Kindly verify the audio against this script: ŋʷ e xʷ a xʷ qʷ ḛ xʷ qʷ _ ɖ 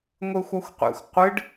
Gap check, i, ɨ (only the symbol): ɨ